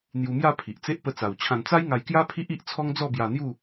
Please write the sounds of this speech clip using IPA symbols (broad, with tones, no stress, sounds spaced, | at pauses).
n̪ j u˧ m j a˥˧ pʰ i˨ ʔ t͡s e˦ ʔ p ə˧ t͡s a˨˩ w t͡ɕʰ ã˧ n t͡s a˦ j ŋ a˧ j k j a˦ pʰ i˦ ʔ i˦ ʔ t͡sʰ ɔ˦ ŋ d͡z ɔ˥˧ b j a˧ n̪ j u˥˧